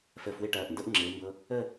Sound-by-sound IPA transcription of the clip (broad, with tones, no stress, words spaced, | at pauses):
fəː˧fwɪ˥˧ʈɐː˧˩ʔ ndɤ˥ʔŋ͡ǁɪː˩˧mbɤ˧ | ə˥˧